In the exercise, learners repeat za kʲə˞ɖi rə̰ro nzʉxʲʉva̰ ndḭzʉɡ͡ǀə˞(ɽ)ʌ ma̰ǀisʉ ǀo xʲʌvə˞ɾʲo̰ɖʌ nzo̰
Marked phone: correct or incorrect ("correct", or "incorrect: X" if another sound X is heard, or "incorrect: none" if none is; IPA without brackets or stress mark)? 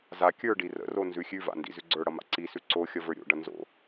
correct